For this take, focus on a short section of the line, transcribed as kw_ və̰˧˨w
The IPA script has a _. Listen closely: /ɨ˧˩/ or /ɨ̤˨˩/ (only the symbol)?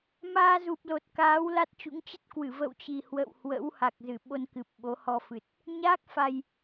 ɨ˧˩